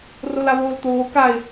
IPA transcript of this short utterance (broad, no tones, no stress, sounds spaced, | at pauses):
r o l a β oː l t̪ oː k a ɪ̯